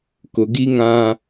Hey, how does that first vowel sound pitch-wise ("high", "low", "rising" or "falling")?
low